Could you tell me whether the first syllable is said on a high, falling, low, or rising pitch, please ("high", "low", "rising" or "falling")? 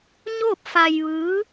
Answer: falling